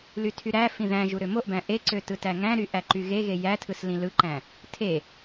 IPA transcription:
l y tʰ y ɾ æ f ĩ ð æ̃ ʒ u ɾ ø m o ʔ b æ̃ ʔ e ǀ ø t ɯ t æ ŋ æ̃ ɾ y ʔ æ ǃ y ɣ e ɣ e j æ tʰ ɯ s l ĩ l ɯ ǃ æ̃ | tʰ e

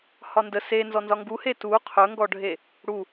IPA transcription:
h ɒ n d ə s e n z ɔ n z ɒ ŋ ɡ u h e t u qʰ ɵ ŋ ɡ ɔ ɖʱ e | ɽ u

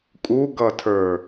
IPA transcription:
kʼ u ɡ ʌ tʰ ə˞

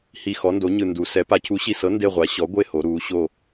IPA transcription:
h i˨˩ x ɔ˩˧ n d o˩˧ ɲ ɯ˨˩ n d u˩˧ s ɛ˩˥ p a˩˧ cʰ u˩˥ ɕ i˨˩ s ɤ˩˥ n d e˦˨ ʁʷ a˩˥ ɕ ɔ˩˥ ɡʷ e˦˨ h o˩˧ ɾ uː˩˧ ɕ o˦˨

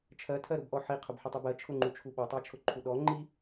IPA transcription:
t͡ʃʰ ɜ tʰ ɜ ɾ ʊ b ʔ ɔ ħ i qʰ ʊ b ħ ʊ tˤ u b ɜ t͡ʃʰ ʊ ŋ͡ǃ u t͡ʃʰ u ɓ ɔ tˤ a t͡ʃʰ ʊ ǃʰ u ɗ ɔ ŋ͡ǃ i

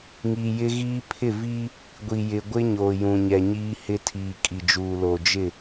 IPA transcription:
ŋ i˨ j ɪ˦ ɣ iː˦ pʰ ɪ˦˨ v iː˦ | ɡʷ i˨ j ɪ˨ ɡʷ ɪ˦ ɲ oː˨ j ũ˨ ɲ ɛ˨ ɲ iː˦ h ɪ˦ tʰ iː˨ kʼ i˨ d͡ʒ uː˨ l o˨ d͡ʒ ɪ˦˨

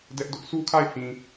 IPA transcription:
d ɛ˦ ʔ d ʊ˦ ʔ s u˦ kʰ a˦˨ ɪ̯ h ĩ˨

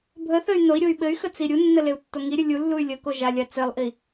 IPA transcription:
bʱ ə θ ə y̯ n o i̯ ɾʲ o y̯ ɓ ɘ y̯ x ə t͡s i ɾʲ u nː ə l e u̯ tː o ŋ i ɾʲ ɘ lʲ u lː u y̯ lʲ ə k o ʒ a lʲ a t͡s ɘ lˠ ʔ i

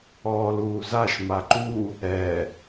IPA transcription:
ɔː l uː z a ʃ m a ǃ u | ɛ

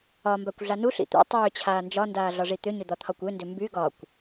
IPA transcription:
ɒ m b a kʷ ɮ a n u ɬ ḭ t̪ ṵ tˤ ʏː t͡ɕʰ aː n d͡ʒ ɒ n d aː ɮ ɒ ʐ i t̪ ʏ ɲ ʏ d̪ ɒ t̪ʰ ɒ kʷ ø n d ʏ m b y ɡ ɒ kʷ

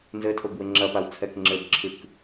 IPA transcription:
n z ɘ tʰ o b w ɘ ŋ͡ǁ ɐ p a w t͡sʰ ɛ k ŋ͡ǁ ɘ b ǁʰ ɨ k

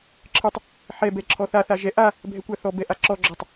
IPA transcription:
ǁʰ ɨ tˤ | ħ ɛ b ɛ ǁʰ ɔ θ a θ a ʒ ɛ ʔ a | bʱ ɛ kʷ a θ ɔ b ɛ ʔ a ǁ ɔ ɡ͡ǁ ɔ tˤ

